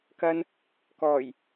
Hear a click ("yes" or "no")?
no